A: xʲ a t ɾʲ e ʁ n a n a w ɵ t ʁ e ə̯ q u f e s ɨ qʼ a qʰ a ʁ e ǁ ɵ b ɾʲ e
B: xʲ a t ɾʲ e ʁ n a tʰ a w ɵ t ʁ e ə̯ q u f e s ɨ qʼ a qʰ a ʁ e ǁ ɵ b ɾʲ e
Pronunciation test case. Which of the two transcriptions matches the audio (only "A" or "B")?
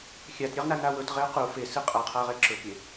A